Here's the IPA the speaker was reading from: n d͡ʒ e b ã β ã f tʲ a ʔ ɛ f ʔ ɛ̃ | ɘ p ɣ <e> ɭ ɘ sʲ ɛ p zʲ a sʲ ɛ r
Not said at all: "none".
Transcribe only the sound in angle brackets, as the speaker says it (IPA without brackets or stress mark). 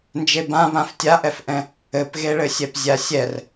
e